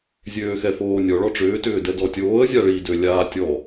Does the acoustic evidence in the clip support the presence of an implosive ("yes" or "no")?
no